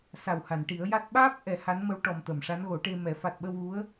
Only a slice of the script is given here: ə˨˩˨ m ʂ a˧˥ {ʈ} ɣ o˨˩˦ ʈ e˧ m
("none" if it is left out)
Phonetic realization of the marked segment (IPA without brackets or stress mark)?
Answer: n